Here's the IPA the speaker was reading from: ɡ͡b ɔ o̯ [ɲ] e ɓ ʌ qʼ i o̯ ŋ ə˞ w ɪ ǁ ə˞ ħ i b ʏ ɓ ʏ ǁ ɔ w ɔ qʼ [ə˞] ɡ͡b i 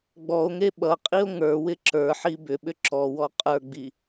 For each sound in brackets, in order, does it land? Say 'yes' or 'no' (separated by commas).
no, yes